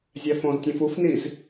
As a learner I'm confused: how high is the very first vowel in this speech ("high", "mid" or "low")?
low